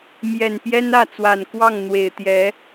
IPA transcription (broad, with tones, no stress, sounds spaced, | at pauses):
m j ɛ˨˩ n p j ɛ˥ n ä˥˩ t͡s w a˨˩ n k w ɑ˥˩ ŋ n̪ w e˨˩ ɪ̯ t̪ j ɛ˧˥